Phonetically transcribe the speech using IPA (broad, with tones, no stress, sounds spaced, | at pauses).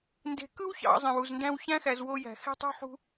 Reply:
n d e̤˨ k ɯ˥ w ç ɑ̰˨ zˤ ẽ˩ w u˩ z n d æ̃˦ w ç æ̃˥ x æ˨ z w o˦ j æ̤˩ x e̤˦ tˤ ṳ˦ ħ ṳ˦